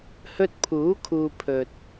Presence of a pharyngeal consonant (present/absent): absent